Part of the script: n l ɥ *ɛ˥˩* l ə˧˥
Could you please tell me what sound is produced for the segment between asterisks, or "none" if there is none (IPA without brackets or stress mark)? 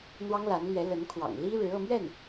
ɛ˧˥